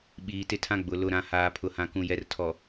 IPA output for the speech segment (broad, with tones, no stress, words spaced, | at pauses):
ɓiː˨tɪ˦tʰã˦ ɡ͡bʊ˨ lʊ˨ɾã˨ haː˨pʰʊ˨hã˨kũ˨ jɛ˨rtʰɔ˨